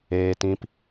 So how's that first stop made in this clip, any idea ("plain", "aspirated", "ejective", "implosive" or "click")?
plain